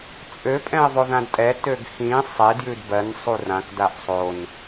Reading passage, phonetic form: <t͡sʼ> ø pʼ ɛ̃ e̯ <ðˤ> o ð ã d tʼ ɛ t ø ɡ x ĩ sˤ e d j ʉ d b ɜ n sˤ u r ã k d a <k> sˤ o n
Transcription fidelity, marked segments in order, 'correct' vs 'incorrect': correct, correct, incorrect: ʔ

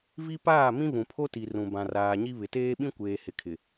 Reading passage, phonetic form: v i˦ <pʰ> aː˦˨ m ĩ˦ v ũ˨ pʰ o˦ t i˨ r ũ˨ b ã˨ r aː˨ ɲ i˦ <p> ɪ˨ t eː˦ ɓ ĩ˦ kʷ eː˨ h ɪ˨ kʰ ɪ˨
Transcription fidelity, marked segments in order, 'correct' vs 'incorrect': incorrect: p, incorrect: β

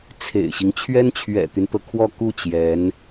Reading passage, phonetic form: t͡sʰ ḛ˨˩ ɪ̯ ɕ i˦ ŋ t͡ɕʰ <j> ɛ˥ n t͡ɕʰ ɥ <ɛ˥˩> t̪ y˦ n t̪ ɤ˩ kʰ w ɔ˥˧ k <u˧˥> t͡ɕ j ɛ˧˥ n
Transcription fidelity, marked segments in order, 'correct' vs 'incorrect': incorrect: ɥ, incorrect: ɛ̰˨˩, incorrect: u˥˩

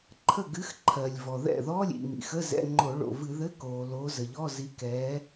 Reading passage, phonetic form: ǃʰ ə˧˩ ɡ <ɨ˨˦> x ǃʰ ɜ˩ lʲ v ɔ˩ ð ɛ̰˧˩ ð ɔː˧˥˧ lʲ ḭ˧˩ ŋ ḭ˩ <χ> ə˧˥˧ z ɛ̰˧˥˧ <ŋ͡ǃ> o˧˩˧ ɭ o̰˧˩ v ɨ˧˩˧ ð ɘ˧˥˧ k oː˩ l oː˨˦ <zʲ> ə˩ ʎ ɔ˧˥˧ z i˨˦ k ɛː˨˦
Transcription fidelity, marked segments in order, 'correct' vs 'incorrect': correct, incorrect: x, correct, incorrect: z

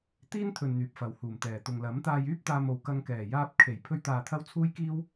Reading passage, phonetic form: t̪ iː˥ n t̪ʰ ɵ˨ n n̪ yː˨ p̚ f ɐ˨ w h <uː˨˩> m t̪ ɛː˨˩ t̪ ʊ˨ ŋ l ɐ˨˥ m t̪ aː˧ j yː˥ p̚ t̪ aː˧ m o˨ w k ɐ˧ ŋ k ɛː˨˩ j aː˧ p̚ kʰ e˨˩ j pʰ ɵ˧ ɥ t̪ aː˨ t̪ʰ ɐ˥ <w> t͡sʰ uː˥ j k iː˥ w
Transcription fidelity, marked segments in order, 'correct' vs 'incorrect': correct, correct

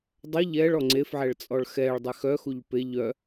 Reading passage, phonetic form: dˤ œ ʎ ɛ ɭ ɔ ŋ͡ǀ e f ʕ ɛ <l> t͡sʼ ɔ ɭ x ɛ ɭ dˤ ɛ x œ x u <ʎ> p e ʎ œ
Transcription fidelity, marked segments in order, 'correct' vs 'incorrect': incorrect: ɭ, correct

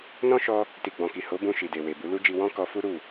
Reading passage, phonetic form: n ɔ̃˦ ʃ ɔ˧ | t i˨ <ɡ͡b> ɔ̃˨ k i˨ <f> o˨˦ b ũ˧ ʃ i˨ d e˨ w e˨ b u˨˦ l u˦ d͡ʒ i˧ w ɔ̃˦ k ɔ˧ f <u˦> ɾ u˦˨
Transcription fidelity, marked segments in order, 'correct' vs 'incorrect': correct, incorrect: h, correct

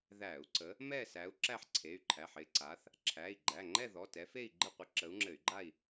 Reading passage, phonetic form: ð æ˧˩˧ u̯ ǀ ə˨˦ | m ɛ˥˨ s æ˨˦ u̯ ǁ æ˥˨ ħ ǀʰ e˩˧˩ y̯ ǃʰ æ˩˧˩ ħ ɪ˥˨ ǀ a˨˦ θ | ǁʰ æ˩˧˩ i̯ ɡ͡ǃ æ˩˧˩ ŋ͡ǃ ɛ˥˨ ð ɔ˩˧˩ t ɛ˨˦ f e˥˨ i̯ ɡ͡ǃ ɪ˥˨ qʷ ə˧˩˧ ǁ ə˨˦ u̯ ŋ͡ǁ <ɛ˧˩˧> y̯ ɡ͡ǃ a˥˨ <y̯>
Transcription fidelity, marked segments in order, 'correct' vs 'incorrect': incorrect: ɘ˧˩˧, incorrect: i̯

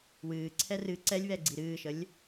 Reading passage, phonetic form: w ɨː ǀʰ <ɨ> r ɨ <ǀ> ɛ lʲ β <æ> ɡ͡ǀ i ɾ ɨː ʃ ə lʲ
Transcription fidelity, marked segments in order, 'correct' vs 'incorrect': incorrect: ɛ, correct, incorrect: ɛ

